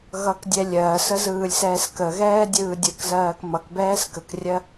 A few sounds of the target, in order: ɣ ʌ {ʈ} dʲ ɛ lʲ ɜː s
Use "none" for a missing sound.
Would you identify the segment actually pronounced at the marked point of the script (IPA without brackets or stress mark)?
k